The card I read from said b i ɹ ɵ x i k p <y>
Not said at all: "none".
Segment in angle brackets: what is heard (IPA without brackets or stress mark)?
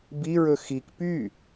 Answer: y